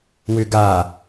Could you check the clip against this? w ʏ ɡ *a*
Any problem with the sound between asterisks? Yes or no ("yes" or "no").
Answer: no